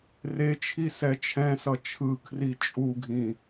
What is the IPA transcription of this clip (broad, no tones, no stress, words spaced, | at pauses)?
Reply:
ret͡ʃʰi sɛt͡ʃʰɛ̃sʌ t͡ʃʰɯ kʰrit͡ʃʼuɡʱĩ